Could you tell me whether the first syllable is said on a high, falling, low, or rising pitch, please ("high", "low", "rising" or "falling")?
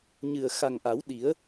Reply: low